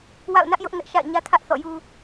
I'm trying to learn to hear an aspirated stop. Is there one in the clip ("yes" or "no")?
yes